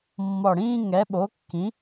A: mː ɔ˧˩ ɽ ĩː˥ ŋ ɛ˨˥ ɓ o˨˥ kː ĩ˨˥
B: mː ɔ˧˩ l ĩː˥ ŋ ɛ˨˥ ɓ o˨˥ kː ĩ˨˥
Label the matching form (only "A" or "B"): A